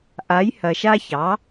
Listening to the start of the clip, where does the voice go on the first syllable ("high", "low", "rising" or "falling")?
rising